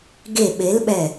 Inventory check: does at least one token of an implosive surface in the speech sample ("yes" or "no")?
yes